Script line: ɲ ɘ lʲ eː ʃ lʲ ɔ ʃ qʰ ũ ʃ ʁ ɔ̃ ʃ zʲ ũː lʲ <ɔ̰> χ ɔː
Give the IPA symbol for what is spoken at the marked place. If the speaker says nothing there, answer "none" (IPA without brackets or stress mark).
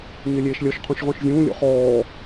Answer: ɔ̰